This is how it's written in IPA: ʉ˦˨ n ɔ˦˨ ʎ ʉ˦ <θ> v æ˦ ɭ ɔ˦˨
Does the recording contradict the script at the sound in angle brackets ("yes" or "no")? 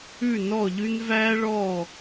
yes